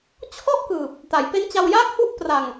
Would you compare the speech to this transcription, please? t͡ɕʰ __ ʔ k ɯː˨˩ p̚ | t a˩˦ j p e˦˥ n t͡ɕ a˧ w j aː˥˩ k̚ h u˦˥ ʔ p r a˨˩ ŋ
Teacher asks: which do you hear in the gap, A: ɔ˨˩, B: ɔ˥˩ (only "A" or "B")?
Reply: B